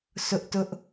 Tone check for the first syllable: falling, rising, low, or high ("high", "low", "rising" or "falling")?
high